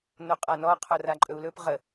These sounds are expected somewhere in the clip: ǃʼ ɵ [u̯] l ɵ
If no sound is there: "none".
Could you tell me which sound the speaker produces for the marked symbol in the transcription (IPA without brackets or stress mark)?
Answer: u̯